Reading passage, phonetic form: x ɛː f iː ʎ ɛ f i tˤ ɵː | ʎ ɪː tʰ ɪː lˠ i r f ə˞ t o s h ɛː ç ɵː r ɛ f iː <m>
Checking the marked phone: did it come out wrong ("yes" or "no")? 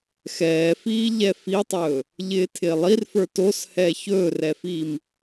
no